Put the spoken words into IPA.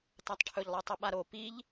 t a tˤ ʈʰ ɵ ʎ lˠ e tˤ ʉ ɓ a ɾ o p i ʎ

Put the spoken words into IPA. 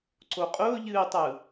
ǀ o qʼ ʊː ʎ ɨː tˤ ɯ

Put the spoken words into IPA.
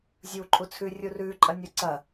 zʲ uː ǃʼ u t͡sʰ ʉ rʲ u r ʉ ǃʼ ɐ nʲ u ǀ ɐ

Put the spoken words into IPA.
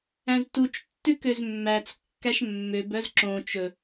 æ̃ z t u t͡ʃ tː ʉ k ø z mː æ t͡s kː æ ʃ mː ø b œ z ǁ õ t͡ʃ ɵ

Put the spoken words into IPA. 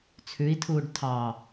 t͡sʰ ʉ i̯ tʰ uː ɖ tʰ ɑ

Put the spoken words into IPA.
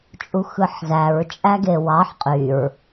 t͡ʃʼ u x ɯ ħ z æ ɹ t͡ʃʼ æ ɡ e w ɑ ħ qʼ y ɹ

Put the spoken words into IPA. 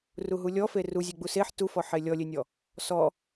r u ɦ u lʲ ɔ f e r u zʲ e ɡ͡b u s e ħ t u f ɔ ħ e lʲ ɔ lʲ e nʲ ɔ | s ɔ

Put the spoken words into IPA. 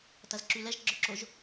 t ɐ z ǁ y l ɛ ʒ ɡ͡ǁ œ ǁ o ʒ

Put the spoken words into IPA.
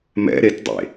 m ɛ̰ ɾ e t dˤ ḛ

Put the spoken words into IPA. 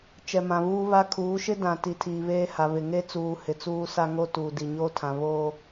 t͡ʃ ɛ˨ m ã˨ β uː˦ β a˦ kʰ uː˨˦ ʃ ɪ˦ d ã˨ t i˨ tʰ iː˨ β eː˦ h a˨ β ɪ˨ ŋ e˦ t͡s uː˨ h ɪ˨ t͡s uː˦ s a˦ ŋ o˦ t uː˨ d i˨ ɲ oː˦ tʰ ã˨ β oː˦

